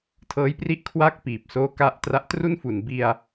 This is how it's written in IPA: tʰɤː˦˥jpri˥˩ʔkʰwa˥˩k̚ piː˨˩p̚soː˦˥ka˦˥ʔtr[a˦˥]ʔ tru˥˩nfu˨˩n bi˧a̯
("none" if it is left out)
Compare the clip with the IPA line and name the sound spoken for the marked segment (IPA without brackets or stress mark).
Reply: a˦˥